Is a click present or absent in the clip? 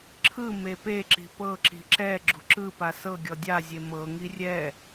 present